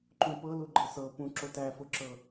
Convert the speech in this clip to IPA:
ǃ ũ p ɤ l u ɡ͡ǃ ɤ s ɤ p ũ ǁ o t æ f ʊ ǁ ɤ

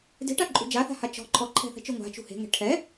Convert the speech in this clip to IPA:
d e̤ ʈ a ǃʼ ṳ d͡ʒ a θ a̤ h a t͡ʃ ɔ̤ ǃʰ ɔ ǃʰ ɛ̤ θ ɛ̤ t͡ʃ ø ŋʷ a̤ t͡ʃ ṳ h e̤ ŋ ɛ̤ ʈʰ ɛ

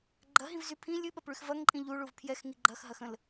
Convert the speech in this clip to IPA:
ɡ͡ǃ ɐ ɦ ĩ v z y pʰ ĩ lʲ ɨ ɓ ɐ p ɭ y x v ɐ ŋ ǃʼ ĩ ʎ u ɭ u v pʰ j ɛ x ŋ i ɡ͡ǃ ɐ x ɦ ɐ x ə̃ l

